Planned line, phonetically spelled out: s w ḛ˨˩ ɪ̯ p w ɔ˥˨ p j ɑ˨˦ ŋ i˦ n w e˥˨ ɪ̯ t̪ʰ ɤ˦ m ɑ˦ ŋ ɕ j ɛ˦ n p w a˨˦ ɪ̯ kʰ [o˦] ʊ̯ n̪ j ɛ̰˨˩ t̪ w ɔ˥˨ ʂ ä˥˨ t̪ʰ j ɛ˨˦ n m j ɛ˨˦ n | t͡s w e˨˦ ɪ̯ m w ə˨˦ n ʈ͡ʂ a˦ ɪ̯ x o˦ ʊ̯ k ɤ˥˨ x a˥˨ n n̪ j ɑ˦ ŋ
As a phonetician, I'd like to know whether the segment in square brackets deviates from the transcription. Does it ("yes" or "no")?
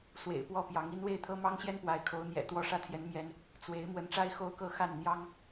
yes